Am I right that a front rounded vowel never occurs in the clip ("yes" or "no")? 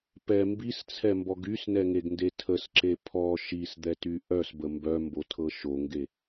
no